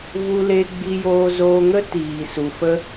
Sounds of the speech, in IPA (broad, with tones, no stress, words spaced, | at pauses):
vu˧le˧ ɡ͡bi˧joː˧zoː˧ŋə˦ tiː˨su˨fə˧